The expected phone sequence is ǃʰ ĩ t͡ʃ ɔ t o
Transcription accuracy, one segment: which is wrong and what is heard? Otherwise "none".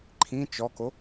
t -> k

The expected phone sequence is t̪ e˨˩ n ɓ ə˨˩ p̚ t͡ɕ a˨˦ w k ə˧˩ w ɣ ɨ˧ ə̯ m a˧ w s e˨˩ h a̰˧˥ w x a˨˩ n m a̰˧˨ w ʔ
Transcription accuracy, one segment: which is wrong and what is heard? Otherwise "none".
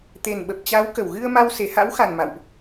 none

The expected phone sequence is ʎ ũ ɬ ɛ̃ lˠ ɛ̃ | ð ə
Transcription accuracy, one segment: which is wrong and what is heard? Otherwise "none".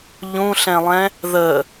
none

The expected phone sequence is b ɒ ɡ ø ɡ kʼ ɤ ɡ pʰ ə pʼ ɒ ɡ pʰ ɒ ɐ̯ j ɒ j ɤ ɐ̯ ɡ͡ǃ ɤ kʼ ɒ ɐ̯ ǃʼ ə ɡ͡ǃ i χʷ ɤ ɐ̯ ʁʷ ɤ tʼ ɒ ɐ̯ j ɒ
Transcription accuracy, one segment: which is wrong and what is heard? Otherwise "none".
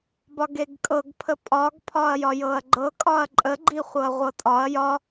ø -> e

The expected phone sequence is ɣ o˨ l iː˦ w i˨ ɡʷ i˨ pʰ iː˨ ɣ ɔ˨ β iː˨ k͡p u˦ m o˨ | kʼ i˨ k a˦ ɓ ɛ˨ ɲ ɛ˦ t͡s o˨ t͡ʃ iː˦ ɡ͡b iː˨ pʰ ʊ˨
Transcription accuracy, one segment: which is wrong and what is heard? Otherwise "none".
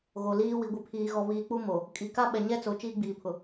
none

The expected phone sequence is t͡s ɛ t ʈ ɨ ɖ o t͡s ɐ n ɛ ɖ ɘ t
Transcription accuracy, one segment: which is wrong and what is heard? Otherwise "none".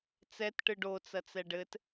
n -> t͡s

